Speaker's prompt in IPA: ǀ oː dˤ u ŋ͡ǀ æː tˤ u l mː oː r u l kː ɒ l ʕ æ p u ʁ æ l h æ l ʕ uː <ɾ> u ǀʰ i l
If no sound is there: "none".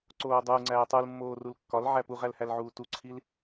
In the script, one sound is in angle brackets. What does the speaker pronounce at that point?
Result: t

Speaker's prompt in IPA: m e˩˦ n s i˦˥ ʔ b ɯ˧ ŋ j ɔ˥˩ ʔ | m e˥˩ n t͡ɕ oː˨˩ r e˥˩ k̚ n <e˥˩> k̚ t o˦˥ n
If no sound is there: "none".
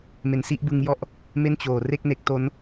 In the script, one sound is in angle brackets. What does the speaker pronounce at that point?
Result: e˦˥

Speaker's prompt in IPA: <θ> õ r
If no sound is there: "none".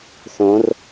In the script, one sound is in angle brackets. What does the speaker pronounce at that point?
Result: θ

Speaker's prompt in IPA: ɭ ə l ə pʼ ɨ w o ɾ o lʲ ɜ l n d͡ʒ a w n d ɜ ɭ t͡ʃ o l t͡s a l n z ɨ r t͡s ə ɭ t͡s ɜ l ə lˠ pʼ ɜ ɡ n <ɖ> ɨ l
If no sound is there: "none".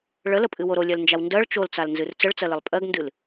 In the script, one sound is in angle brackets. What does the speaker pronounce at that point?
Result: d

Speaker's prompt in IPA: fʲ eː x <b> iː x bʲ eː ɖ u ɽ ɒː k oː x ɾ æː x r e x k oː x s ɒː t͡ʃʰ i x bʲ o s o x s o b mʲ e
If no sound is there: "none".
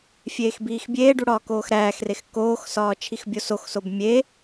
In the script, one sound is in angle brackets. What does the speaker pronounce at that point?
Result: b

